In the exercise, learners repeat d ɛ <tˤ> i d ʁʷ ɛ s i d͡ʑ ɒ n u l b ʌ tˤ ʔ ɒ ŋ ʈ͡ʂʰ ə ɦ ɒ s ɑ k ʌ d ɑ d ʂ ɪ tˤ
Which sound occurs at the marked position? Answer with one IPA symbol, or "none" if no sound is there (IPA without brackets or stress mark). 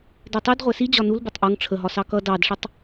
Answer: tˤ